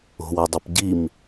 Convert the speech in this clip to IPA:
o̤wodˤip ɟim

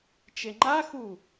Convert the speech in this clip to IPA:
t͡ʃeŋ͡ǃaxu

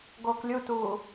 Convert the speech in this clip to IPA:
ɡoːklʲutuː

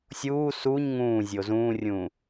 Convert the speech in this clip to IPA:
sʲuː suɲ ŋũː zʲozũːrʲũː

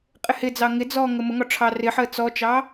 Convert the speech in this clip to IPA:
qʼɪhɪd͡zɑ ŋɪd͡zɔː ŋəməŋɒ ʈ͡ʂʰɑrɪħəː t͡sɔt͡ʃɑ

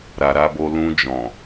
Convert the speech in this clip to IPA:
ɾa˨ɾa˧bo˧ lũ˧ d͡ʒɔ̃˨

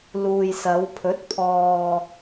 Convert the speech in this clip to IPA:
luː˨jsɐ˨˧wpʰɵ˨˥t̚ pʰɔː˨

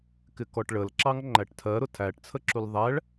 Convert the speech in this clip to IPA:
kɪkɔʈɭəlǁɑŋ ŋ͡ǃæʈtʰɜɾʊ tʰæʈt͡sʰəǁul ðˤæɭ

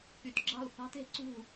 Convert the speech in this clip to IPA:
ky˨˦tɡ͡ǁɑ̤˥˨u̯ θɑ̤˦˥te̤˨˦ǀṳ˥˨

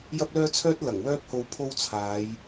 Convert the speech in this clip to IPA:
jɐ˥p̚lœː˥t͡sʰœː˥t̚ lɐ˨˩ŋ wœː˥p̚ho˧w pʰo˥wt͡sʰaː˨˧j

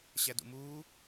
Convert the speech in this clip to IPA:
ɕædṵmuː

